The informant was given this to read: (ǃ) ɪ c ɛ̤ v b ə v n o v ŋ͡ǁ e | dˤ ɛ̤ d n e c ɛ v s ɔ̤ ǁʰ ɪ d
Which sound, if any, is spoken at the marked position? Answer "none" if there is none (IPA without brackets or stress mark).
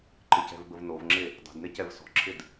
ǃ